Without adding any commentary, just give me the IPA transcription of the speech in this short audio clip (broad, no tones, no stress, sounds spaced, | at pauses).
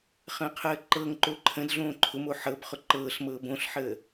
χ ə̃ː qʰ əː ǃ ɤ ŋ ǃ o ǃʰ ə̃ d ɮ õː ǃʰ ʊ m o ħ ɤ b χ ʊ ǃ ɤː ɬ m ɤː b õ ɬ ħ əː